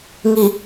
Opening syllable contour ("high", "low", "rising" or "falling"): low